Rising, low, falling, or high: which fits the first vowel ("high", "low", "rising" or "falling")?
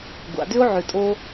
low